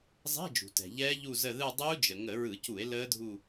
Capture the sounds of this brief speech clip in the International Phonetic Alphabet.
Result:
zˤ ɛ̤˧˥˧ d͡ʒ ṳ˩ t ɛ̤˩ ʎ ɛː˦˥ ʎ u˦˨ z ə˦˨ ð ɯ˦˨ dˤ uː˦˥ d͡ʒ ə˩ ŋ ə˧˩˧ ɹ ɯ˧˩˧ c u˧˩˧ e̯ l əː˦˥ dʱ u˦˨

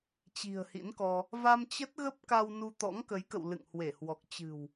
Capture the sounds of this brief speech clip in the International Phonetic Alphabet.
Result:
t͡ɕ i̤˨˩ ə̯ h ḭ˧˥ n k ɔ˧ | v a˧ m t͡ɕ ə˦˥ t̚ ɣ ə˦˥ p̚ k a˧ w n u˧ t̪ ɔ̰˧˥ ŋ k ə˨˦ j k ə̰˧˨ w l ɨ̰˧˨ ŋ h w e˧˩ h w ɔ˨˩ k̚ t͡ɕ ɨ̤˨˩ w

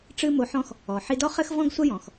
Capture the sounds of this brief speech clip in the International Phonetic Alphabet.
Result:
ʈ͡ʂ ɨ˥ m o˧ ħ ɔ̃˥ x | ɔ˩ ħ i˧ d ɔ˥ χ ɘ˥ x v ɔ̃˥ ɡ sʷ ɐ˥ j ɔ̃˩ x

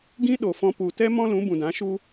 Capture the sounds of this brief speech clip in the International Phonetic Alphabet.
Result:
ɡ ĩ˦ ɗ o˨ f ɔ̃˧ p u˨ t ɛ˦ m ɔ̃˦ l ũ˨˦ b ũ˨ d ã˨˦ ʃ u˦

